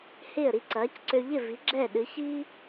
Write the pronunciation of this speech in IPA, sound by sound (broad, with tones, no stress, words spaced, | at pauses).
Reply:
hɪː˥˩ə̯ɾi˧ ǀɐː˩˥cǀø˧ ʎɪ˥˩vi˩˥ ɡ͡ǁɛː˥˩ɗɨ˩˥çiː˥